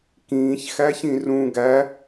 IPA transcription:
k ĩː ç x æ ç ĩ r ũ ɡ æ

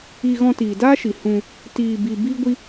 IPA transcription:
i˧ ɣ ɔ̃˧ t iː˨ d aː˦ ʃ i˨ h ũ˧ | t iː˧ b i˧ b iː˦ ɡʷ i˦

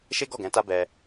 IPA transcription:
ʃ e˦ ɡ ɔ˦˨ ɡ ɛ̃˨˦ t a˦ b ɛ˧

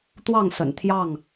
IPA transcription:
t̪ w ɑ˥˨ ŋ s ə̰˨˩ n t̪ʰ j ɑ˥˨ ŋ

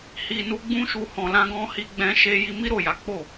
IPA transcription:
h i˨ n u˧ ɡ͡b ũ˦ ʃ u˧ h ɔ̃˨ l ã˧ ɡ ɔ̃˧ h i˧ ɡ͡b ɛ̃˧ ʃ e˧ j i˧ m i˦ ɾ o˦˨ j a˨˦ k͡p o˦˨

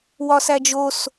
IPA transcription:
w ɒ s æ d͡ʒ o s

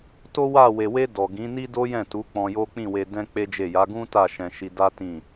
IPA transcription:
t o˦ w a˦˨ w e˨ w e˧ d ɔ˨ ɡ ĩ˨˦ n i˦ d o˦ j ɛ̃˦˨ t u˨˦ k͡p ɔ̃˧ j o˦ k͡p ĩ˦˨ w e˧ d ɛ̃˦ k͡p e˦ d͡ʒ e˦˨ j a˨˦ ɡ ũ˦ t a˦˨ ʃ ɛ̃˧ ʃ i˧ d a˦ t ĩ˦˨

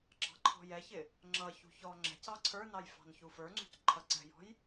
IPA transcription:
ɡ͡ǁ ɑ̤ ǃʰ ɔ̤ j ɛ ç ɪ | ŋ͡ǁ ʌ ç ṳ ç ɔ ŋ͡ǁ ɛ̤ c ɑ ǀʰ ə˞ n ɑ j f ɑ̤ n ç u f ə˞ ŋ͡ǀ ṳ c ǃʰ ʌ ǀ ɛ̤ j ɔ̤ j

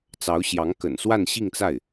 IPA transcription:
t͡s ɑ˧˥ ʊ̯ ɕ j ɑ˧˥ ŋ k ə̰˨˩ n s w a˥˧ n ɕ i˥˧ ŋ t͡s a˥˩ ɪ̯

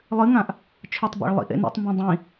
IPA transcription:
lˠ ɨ ŋ ã ʔ | t͡ʃʰ ɵ tˤ b a̰ ɭ lˠ ḭ ʔ ḛ n ḭ tˤ m b ã dˤ ĩ

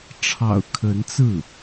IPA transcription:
ʈ͡ʂʰ ɑ̰˨˩ ʊ̯ kʰ ə˧˥ n t͡s ɹ̩˥˩

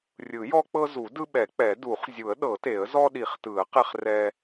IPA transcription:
rʲ ɯ˨˩˦ j ɔ˦ k͡p ɤ˦ z u˨˩˦ d ɯ˦ ɓ ɛ˨˩˦ k͡p ɛ˨˩˦ d u˨˩˦ χ zʲ u˨˩˦ ə̯ ɗ ɤ˨˩˦ t e˨˩˦ ə̯ z ɔ˦ ɗ i˨˩˦ χ t ɯ˨˩˦ ə̯ q ɛ˦ χ r ɛ˦

